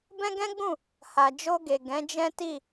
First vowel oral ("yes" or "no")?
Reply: no